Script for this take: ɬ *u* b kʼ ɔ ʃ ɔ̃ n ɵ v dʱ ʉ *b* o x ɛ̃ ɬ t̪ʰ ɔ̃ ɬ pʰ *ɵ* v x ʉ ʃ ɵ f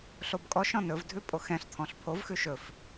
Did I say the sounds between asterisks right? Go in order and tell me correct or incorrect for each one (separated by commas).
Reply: incorrect, incorrect, incorrect